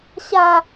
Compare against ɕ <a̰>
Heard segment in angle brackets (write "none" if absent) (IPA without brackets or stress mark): a